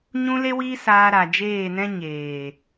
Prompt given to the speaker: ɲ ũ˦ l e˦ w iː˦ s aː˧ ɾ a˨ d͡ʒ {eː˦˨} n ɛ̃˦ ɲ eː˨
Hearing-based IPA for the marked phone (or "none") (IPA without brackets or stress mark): eː˦˨